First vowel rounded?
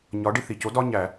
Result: yes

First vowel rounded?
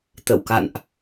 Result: no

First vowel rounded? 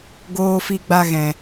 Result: yes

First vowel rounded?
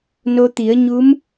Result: yes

